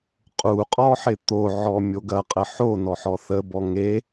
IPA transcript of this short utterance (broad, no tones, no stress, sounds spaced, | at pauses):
qʼ u qʼ ɔ ħ ɪ t̪ o ʕ ɔ mʲ o ɡ ɐ qʼ ə ħ o n ɔ ħ ɔ θ ə b ɔ ŋ e